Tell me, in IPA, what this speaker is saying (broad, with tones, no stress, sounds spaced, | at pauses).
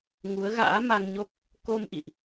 ŋ u˨˦ ə̯ ɣ a̰ː˧˥ m a˧ ŋ ɲ o˦˥ k̚ | k o˧ m ʔ ḭ˧˨ ʔ